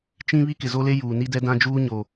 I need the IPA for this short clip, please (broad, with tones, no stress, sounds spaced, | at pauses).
t͡ʃ ĩ˦ β i˦ k ɪ˨ z o˦ l e˦ j uː˨ n i˦ d ɛ˦ d ã˦ d͡ʒ uː˦ ɲ o˨